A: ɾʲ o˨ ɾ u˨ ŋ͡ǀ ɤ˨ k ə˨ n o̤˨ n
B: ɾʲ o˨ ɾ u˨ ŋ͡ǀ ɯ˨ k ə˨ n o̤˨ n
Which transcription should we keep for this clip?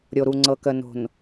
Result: A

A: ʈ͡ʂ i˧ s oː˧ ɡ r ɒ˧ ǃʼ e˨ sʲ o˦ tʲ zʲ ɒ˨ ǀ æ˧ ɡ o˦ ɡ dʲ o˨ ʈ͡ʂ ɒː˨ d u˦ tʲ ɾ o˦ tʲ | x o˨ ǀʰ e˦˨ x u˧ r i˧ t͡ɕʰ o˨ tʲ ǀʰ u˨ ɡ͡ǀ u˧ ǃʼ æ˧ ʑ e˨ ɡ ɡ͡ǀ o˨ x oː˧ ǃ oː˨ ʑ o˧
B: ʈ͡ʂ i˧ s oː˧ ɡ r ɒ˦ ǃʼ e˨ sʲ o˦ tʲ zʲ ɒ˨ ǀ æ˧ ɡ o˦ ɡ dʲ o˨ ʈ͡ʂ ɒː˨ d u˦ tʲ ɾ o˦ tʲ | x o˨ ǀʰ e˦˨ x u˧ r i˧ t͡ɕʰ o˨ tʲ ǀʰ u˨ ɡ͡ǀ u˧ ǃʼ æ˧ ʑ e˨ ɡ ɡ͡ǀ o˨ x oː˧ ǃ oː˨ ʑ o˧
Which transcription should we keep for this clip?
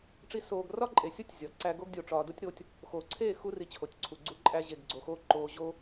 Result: B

